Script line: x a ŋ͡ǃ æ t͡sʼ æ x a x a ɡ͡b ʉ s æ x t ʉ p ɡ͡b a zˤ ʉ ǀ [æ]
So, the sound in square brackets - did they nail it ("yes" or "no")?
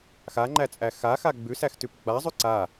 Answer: no